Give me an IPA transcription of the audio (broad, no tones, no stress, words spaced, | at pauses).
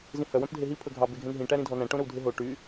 zĩhœ wœ̃pdʱeɦi pʰɵɡʱɑ beɡʱẽnɦĩ ʈæɾĩdʱɔnæ̃ ʈõɾɵwdʱeɦo ʈy